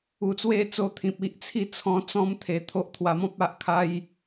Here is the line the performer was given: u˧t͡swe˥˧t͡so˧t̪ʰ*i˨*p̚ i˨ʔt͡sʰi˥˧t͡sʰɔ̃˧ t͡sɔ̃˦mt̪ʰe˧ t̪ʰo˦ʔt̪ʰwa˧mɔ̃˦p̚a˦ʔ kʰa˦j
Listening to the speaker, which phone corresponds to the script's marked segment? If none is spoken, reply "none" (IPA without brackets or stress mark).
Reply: ĩ˨